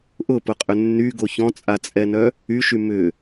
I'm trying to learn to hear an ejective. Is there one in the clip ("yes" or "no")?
yes